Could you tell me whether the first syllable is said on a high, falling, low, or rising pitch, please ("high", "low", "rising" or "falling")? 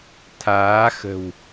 rising